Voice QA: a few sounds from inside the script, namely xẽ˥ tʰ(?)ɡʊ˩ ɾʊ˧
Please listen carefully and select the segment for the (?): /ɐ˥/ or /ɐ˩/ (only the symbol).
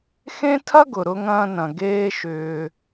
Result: ɐ˥